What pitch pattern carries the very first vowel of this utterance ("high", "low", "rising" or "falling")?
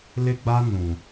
high